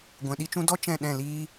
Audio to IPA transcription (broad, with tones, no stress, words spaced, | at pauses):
ɡʷɛ̃˨ɗi˦t͡ʃũ˦ dɔ˦ t͡ʃɛ̃˦˨ɗɛ̃˦˨liː˦